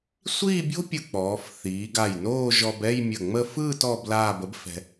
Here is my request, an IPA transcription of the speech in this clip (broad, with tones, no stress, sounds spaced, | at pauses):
sʷ iː˥˧ bʲ o̤˥ pʲ ɯ˧˩ k͡p ɔː˩˧ f θ iː˩˧ ɡ a˧˩ j n oː˥˧ ʒ ɔ˧ b ɛ˥˧ j mʲ ə˧˩ ŋ͡m ə˥˧ f ɯː˥˧ t ɔ˧ b l aː˥˧ b ə˥ b f ɛ̤˧